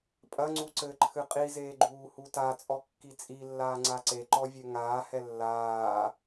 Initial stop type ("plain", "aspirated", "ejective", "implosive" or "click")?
ejective